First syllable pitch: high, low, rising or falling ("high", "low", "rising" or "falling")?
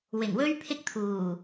low